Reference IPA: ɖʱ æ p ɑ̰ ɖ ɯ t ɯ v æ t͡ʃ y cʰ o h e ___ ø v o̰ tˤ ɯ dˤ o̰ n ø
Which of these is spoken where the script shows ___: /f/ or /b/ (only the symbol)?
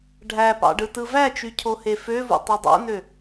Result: f